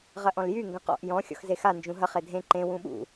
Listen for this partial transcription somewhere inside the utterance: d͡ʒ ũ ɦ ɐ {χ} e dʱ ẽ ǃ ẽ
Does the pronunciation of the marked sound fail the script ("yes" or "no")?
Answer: no